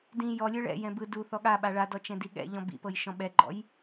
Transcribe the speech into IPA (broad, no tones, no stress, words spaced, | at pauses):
dĩ jɔ lʲɯɭɛ̰ jɛ̃bɯ duθɔ ɠa ɓaɭadɔ t͡ʃɛ̃diɠɛ̰ ʎɔ̃bḭpɤjʃɔ̃ ɓɛɡ͡ǃɔ̰j